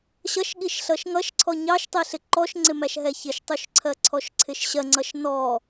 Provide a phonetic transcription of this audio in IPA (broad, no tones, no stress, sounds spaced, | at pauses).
ɕ ʌ ʃ ɠ i ʃ ɬ ʌ ʃ ŋ ʌ ʃ ǀʰ ɔ ɲ ɑ ʃ tˤ i ɬ ɪ ǃ ɔ ʃ ŋ͡ǀ ɪ m æ ʃ ɦ ɛ ç ɪ ʃ tˤ u ʃ ǀʰ ɜ ǀʰ ɔ ʃ ǀʰ ɪ ʃ ɕ ɜ ŋ͡ǀ ʌ ʃ n ɔ